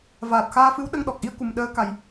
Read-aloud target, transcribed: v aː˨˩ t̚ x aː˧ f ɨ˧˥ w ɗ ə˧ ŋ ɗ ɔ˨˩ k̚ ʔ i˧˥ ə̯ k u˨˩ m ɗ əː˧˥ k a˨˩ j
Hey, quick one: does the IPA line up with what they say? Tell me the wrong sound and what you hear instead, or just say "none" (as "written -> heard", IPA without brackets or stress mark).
none